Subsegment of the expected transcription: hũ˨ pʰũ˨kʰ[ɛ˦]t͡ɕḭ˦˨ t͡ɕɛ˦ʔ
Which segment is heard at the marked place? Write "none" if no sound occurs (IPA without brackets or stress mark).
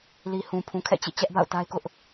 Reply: ɛ̰˦˨